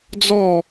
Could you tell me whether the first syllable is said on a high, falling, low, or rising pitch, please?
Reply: falling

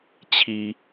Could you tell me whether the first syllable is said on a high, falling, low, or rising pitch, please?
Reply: low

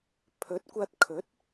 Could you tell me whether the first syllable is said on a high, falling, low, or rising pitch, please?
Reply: rising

